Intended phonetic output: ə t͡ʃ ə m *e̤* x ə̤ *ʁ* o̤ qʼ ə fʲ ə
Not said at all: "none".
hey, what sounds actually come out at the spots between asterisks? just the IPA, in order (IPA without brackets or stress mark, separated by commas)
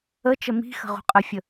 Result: i̤, ʁ